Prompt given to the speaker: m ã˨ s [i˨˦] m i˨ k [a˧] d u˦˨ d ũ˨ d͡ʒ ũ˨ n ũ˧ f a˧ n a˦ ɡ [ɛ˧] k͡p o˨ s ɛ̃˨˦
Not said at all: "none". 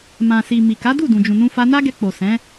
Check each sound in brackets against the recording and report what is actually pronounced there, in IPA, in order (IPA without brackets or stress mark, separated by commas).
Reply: i˨, a˨˦, ɛ˧